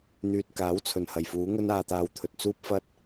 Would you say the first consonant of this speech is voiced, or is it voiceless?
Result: voiced